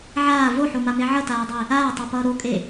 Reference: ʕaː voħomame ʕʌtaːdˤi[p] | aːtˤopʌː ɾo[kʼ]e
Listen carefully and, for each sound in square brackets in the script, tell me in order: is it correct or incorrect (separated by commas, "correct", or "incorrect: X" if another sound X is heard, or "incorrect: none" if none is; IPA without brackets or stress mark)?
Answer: incorrect: none, correct